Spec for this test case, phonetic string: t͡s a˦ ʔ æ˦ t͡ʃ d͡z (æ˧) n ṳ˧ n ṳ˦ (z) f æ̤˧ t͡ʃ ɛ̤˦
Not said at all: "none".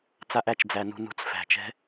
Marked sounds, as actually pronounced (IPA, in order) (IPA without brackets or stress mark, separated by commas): æ˧, t͡s